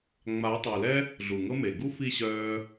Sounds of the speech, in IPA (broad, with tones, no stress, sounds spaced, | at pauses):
ŋ͡m a˨˦ tˤ œ˨ l ɛ˦ | ɮ u˨ ŋ ɤ˦ m e˨ ɡ u˦ f i˦˨ ɕ œː˧